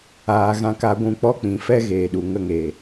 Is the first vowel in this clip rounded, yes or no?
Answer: no